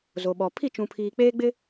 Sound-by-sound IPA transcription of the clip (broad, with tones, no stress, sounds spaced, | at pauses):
z o˨ ɓ ɔ˨ pʰ i˦˨ t͡ʃ ũ˨ pʰ iː˨ k͡p eː˦ ɡ͡b ɪ˦